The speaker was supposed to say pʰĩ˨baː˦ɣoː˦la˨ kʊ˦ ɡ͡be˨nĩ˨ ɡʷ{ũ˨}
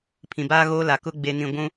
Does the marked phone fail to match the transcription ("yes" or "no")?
yes